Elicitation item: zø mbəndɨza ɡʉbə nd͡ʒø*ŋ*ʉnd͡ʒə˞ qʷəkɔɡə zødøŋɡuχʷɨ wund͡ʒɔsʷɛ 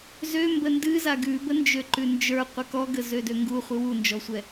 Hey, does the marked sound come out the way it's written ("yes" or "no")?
no